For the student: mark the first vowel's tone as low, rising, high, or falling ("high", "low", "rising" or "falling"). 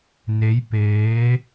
rising